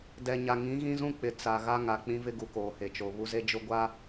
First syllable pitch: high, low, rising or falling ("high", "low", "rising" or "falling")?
low